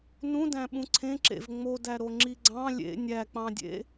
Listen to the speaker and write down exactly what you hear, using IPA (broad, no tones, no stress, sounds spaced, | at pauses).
n ũ d æ̃ ɓ ũ ǀʰ ẽ ǁ ḛ v ŋ͡m o d æ ɾ o ŋ͡ǁ i ɡ͡ǀ ɑ̃ lʲ ḛ nʲ æ k͡p ɑ̃ dʲ ḛ